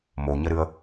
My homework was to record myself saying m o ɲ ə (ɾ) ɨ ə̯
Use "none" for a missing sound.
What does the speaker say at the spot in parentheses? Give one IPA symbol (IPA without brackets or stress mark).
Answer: ɾ